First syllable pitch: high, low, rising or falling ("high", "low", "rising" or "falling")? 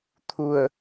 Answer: low